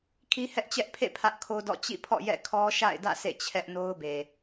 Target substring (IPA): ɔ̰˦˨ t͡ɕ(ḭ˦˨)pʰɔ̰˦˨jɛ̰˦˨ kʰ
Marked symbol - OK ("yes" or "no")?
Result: yes